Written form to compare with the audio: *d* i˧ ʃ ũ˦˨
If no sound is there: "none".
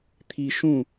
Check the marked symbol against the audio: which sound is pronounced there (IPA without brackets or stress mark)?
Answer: t̪ʰ